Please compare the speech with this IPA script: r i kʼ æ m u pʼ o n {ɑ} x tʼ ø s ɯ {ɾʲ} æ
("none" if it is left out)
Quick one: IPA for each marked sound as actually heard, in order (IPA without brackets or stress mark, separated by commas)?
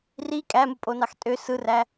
ɑ, r